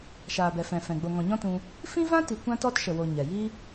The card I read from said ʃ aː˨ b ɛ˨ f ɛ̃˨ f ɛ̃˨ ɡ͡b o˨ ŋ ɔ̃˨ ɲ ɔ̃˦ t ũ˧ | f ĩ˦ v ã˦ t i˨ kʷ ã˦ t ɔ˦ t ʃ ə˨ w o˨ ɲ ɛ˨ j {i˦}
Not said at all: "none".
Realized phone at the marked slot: i˦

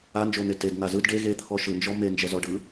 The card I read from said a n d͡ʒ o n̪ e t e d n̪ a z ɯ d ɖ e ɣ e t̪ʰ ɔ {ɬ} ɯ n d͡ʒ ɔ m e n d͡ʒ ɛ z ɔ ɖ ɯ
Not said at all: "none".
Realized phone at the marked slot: ʃ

